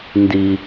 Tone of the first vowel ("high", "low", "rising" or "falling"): high